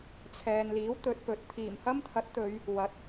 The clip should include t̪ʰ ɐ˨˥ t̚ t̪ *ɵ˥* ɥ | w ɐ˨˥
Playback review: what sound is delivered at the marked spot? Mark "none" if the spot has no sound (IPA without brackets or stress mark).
ɵ˨˧